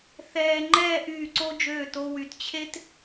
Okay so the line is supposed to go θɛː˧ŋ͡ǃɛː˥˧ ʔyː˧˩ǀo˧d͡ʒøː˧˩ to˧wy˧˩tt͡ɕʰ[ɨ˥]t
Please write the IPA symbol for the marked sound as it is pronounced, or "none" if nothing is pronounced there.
e˥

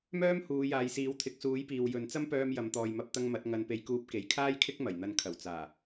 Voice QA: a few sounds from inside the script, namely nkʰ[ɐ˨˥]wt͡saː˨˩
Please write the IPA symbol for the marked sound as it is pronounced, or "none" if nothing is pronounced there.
ɐ˨˩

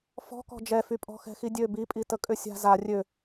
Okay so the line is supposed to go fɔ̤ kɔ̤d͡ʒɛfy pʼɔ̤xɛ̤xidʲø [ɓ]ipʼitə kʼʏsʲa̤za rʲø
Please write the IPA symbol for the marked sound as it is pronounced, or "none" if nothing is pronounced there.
b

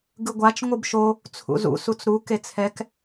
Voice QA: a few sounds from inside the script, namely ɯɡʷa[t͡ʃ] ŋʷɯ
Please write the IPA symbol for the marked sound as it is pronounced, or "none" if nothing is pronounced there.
t͡ʃ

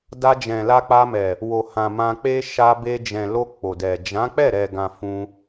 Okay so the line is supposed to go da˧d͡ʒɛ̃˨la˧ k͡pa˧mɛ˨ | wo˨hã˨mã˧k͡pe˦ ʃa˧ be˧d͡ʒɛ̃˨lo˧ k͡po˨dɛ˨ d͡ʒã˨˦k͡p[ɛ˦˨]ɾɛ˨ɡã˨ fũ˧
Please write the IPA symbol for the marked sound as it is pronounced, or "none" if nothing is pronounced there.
ɛ˦˨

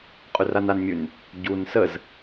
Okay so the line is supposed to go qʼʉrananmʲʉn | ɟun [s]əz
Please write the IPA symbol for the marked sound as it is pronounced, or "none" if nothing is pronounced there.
s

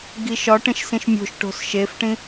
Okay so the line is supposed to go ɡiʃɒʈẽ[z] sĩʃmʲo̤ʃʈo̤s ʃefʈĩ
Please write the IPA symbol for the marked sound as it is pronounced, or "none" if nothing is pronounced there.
ʃ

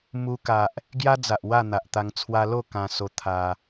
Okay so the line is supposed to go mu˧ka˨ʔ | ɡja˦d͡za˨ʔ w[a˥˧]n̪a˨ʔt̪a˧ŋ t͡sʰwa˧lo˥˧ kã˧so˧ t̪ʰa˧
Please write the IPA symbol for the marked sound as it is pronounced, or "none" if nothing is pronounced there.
a˥˧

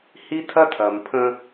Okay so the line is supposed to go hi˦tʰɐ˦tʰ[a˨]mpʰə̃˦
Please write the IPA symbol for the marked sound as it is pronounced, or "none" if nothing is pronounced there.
ɐ˨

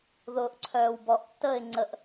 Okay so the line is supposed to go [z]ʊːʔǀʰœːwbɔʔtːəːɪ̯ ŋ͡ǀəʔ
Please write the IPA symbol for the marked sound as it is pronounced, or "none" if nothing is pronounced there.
ð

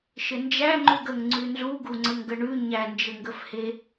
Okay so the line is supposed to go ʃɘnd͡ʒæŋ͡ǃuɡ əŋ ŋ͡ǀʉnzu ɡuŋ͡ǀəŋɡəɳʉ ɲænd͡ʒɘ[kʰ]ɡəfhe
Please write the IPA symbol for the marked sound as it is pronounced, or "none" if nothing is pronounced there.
ŋ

